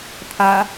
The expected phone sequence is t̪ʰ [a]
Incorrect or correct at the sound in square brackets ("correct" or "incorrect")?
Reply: correct